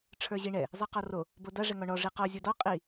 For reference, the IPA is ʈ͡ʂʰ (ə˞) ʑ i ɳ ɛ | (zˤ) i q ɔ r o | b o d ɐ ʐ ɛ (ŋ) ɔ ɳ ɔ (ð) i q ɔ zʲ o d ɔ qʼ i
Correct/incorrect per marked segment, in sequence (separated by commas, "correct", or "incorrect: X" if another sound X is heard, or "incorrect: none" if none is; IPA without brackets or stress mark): correct, correct, correct, incorrect: ʐ